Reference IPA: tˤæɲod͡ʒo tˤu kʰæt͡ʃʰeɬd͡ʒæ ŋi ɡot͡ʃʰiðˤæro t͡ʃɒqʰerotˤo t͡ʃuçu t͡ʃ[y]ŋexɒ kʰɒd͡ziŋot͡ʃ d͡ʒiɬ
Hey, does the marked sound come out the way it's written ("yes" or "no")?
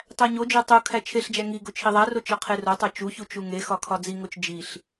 no